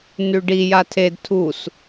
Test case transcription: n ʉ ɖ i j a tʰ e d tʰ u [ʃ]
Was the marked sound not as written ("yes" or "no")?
yes